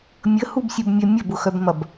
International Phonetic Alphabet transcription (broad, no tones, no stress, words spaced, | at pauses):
mʲəhubsʲubmʲœ mʲɐbʊxœbmɐb